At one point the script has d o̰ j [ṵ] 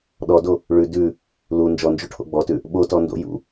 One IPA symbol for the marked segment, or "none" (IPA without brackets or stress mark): ṵ